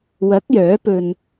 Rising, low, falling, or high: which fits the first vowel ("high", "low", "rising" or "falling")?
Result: rising